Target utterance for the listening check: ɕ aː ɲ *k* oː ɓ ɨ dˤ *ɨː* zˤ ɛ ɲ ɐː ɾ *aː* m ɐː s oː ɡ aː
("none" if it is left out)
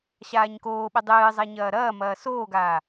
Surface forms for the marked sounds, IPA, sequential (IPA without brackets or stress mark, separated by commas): k, ɨː, ɐː